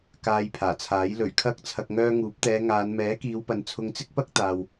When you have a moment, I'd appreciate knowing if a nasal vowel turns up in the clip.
no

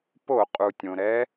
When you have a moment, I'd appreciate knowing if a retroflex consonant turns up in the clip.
no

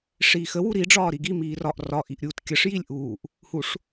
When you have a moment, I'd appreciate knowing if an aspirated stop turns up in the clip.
no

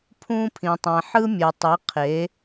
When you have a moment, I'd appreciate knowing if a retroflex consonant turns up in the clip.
no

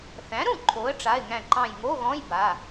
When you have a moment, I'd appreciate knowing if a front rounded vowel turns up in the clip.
no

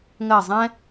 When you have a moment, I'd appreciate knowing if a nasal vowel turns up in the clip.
yes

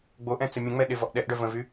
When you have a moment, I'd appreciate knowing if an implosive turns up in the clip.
yes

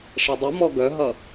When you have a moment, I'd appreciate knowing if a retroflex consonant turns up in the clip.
yes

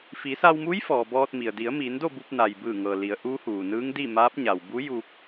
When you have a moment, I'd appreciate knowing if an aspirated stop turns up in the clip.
no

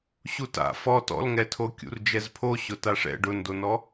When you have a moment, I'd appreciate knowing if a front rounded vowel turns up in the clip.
no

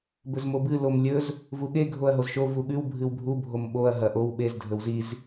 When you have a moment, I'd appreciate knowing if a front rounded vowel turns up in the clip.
no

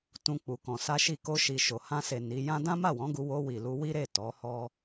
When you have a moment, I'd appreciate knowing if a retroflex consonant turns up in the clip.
no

